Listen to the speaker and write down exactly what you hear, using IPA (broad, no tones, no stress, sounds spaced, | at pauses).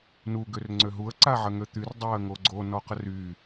n u ɡ ø r ŋ͡ǀ ø ɦ u ə̯ ǀ a ʕ ə ŋ ø t̪ y r dˤ a ə̯ ŋ o ɡ͡ǀ o n ɔ q ə r y